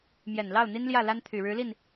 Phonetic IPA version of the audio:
m j ɛ˨˩ n l ɑ˥˩ ʊ̯ n̪ i˥ n l j ä˥˩ l a˥ n t̪ʰ y˨˩ ɻ ɻ̩˧˥ l i˥˩ n

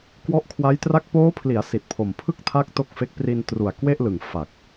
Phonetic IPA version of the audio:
k w ɔ˦˥ ʔ kʰ w a˦˥ j t r a˥˩ k̚ p oː˦˥ pʰ l i˩˦ a̯ s i˨˩ t̚ pʰ o˨˩ m pʰ ɯ˥˩ k̚ tʰ a˦˥ k̚ t o˥˩ k̚ f e˦˥ k̚ p r i˧ n t r u˨˩ a̯ k w e˥˩ ʔ l ɯ˨˩ ŋ f a˨˩ k̚

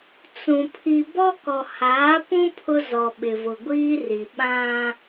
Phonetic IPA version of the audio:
t͡s ũ˨ pʰ i˨ b ɔ˦ k ɔ˨ h aː˨˦ p ũ˦ pʰ ʊ˦ z ɔ˨ ɓ ɪ˨ v ʊ˨ ɡʷ iː˦ r i˨ ɓ ã˦

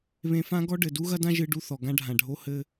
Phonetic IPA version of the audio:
β ẽ˧ f ã˥ ɡ ɔ˥ ɖ ɘ˩ d u˥ ɣ ɐ˥ d ã˥ ʒ ɨ˧ ɖ u˧ θ ɔ˩ ɡ ã˧ ɖʱ ã˩ ɖʱ o˧ h ɘ˥

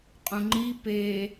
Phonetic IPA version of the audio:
qʼ ũ ŋ͡ǃ i p e

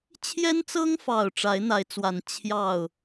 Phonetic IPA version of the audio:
t͡ɕʰ j ɛ˦ n t͡s ɤ˦ ŋ f ɑ˨˩ ʊ̯ ʈ͡ʂ a˨˦ ɪ̯ n̪ a˨˦ ɪ̯ t͡s w a˨˩ n t͡ɕʰ j ɑ˥˨ ʊ̯

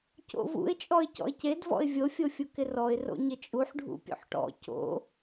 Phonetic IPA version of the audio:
c o̰ v ṵ ɪ̯ t͡ʃʼ ɔ ɪ̯ c ɔ̰ ɪ̯ c e d v ɔ̰ ɪ̯ vʲ o fʲ o fʲ u k ɪ r ɔ ɪ̯ r o̰ ɲ ɪ t͡ʃʼ u ħ ɖʱ ṵ pʲ o̰ ħ ʈ ɔ̰ c o̰

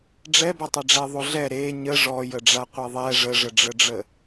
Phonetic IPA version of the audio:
ɖ͡ʐ ɛ b ɛ tˤ ɛ ɖ͡ʐ ɛ ðˤ o ɮ ɛ ɾ e ɲ ə ʐ ɔ j ə ɖ͡ʐ a qʷ e ðˤ ɛ ʐ ə ʐ ə ɖ͡ʐ ə ɖ͡ʐ ə

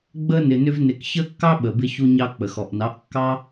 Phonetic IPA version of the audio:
ɡ͡b ə˦ n ɪ˨ n ʏ˧ v n ɪ˨ k ç ə˦ kː ɑ˦ ɓ ə˨ b ɪ˧ ç u˧ ɲ ɑ˧ k͡p ə˨ x ɔ˨ ʔ n ɑ˨˦ ʔ kː ɑ˦

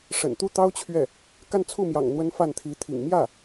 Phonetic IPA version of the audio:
ʂ ə̰˨˩ n t̪ u˥ t̪ ɑ˥ ʊ̯ t͡ɕʰ ɥ ɛ˥˩ | k a˥˧ n t͡sʰ u˥˩ m j ɑ̰˨˩ ŋ n̪ w ə˧˥ n f a˥˩ n t̪ʰ i˧˥ t̪ʰ ḭ˨˩ ŋ m j ä˥˩

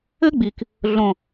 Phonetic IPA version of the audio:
ɘ˦ ɡ͡b i˨ k | ɮ õ˨

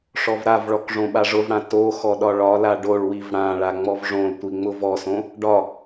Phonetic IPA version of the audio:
ʂ ɔ v ɾ a v ɭ ɔ k ʐ õ ɓ a ʐ ʊ v ɽ ã t o x ɔ ɗ ɒ ɭ ɒ l a ɖ o ɭ w i v ɽ ã ɭ a ŋ͡m ɔ v ʐ õ l tʷ i ŋ͡m ʊ v ɔ s õ | ɖ ɒ

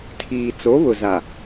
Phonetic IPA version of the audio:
tʰ iː˨ t͡s o˨˦ β ʊ˨ z a˨

